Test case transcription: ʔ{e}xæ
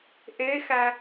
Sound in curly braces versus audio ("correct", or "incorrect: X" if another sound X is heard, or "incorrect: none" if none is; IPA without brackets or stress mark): correct